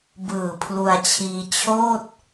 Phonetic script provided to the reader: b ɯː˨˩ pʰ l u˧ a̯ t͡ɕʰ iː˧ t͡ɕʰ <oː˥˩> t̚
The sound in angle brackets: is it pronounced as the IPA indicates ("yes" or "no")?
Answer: yes